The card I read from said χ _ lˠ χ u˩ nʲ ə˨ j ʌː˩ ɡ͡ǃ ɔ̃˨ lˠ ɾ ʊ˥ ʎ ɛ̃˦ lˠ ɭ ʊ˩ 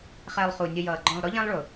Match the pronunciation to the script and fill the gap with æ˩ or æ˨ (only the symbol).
æ˨